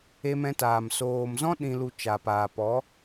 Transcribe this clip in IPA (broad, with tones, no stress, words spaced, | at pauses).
e˧mɛ̃˧taː˨m soː˨mzɔ̃˦ ɗĩ˧lu˧ t͡ʃa˨paː˨ pɔ˨˦